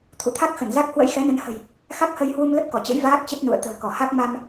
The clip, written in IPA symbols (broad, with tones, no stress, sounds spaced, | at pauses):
t̪ʰ ṵ˧˨ t̪ʰ a˦˥ k̚ x ə˧˩ n z a˦˥ k̚ h w ə̰˧˥ j x ɛ˨˦ n ə˨˦ n h ə̤˨˩ j | x a˦˥ k̚ h ə˧ j h w u˧ m l ə˦˥ p̚ k ɔ˧˩ t͡ɕ ə̰˧˥ j v aː˦˥ k̚ t͡ɕ ə˦˥ t̚ n ṵ˧˨ ə̯ t̪ ə̤ː˨˩ k ɔ˧˩ h a˦˥ k̚ m a˧ m